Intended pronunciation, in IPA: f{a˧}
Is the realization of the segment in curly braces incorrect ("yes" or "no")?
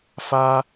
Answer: no